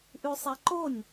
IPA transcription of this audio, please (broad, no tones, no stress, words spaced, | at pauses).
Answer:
ʔʉsˤɛǃonʲ